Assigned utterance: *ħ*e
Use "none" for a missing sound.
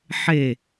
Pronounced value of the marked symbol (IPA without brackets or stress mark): ħ